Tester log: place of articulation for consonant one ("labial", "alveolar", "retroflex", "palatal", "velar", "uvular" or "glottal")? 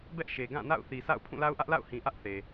labial